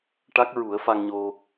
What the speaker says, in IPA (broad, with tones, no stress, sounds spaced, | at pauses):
ʈ a˦˥ k̚ ɹ u˨˩˦ ə̯ f a˧ ŋ ɲ o˧